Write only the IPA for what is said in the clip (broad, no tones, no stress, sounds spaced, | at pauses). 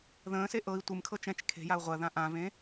ð ə̃ː s e ʔ ɤ i̯ tʷ ɨ m kʰ ɤ t͡ʃ ɛ̃ t͡ʃ kʰ e̤ j a u̯ ʁʷ ɜ ð ã ʔ ã v ẽ